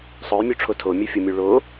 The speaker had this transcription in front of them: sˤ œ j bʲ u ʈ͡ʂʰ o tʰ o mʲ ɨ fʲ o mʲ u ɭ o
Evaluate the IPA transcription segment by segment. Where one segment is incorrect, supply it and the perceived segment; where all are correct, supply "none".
bʲ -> mʲ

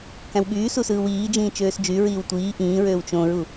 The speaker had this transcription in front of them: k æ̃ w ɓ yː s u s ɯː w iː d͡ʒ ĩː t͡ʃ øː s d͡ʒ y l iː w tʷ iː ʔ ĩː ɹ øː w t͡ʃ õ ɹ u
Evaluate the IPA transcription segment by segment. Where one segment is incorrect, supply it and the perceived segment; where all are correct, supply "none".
l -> ɹ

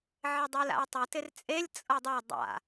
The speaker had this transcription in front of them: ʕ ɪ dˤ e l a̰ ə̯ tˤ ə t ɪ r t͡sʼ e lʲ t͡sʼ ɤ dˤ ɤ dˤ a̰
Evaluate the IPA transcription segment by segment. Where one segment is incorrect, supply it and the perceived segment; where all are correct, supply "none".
none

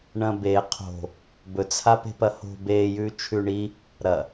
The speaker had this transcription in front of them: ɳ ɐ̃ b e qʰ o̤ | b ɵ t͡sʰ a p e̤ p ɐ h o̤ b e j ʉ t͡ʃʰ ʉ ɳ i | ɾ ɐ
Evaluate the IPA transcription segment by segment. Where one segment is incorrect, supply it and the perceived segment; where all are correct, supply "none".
none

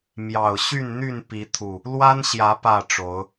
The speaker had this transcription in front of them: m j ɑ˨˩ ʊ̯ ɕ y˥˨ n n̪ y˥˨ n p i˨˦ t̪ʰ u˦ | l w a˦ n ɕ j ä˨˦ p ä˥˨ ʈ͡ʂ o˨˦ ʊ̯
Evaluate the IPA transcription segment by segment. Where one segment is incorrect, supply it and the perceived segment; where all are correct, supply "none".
u˦ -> u˨˩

